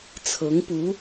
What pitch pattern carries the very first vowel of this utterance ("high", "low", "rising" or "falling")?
rising